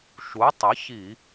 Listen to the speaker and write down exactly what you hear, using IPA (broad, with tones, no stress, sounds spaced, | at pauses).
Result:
ʃ u˩˥ tˤ ə˩˥ ç i˧˩˧